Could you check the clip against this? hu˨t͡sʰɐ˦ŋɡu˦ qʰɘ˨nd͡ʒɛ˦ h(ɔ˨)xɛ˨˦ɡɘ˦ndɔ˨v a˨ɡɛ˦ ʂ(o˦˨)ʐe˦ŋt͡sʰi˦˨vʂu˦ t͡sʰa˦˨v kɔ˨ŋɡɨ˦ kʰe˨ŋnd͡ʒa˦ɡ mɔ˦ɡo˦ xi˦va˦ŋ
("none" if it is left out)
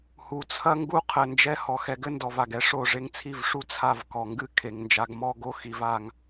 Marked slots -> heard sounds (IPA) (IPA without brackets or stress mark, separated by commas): ɔ˨, o˦˨